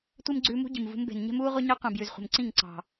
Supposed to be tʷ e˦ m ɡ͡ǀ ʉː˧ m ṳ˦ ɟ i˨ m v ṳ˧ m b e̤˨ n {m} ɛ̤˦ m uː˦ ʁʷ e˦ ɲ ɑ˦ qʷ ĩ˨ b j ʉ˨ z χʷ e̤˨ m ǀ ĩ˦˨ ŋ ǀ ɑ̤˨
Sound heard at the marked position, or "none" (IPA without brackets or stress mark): ɲ